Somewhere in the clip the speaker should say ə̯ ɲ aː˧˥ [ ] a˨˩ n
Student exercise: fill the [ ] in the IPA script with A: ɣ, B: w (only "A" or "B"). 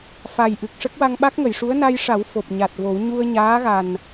A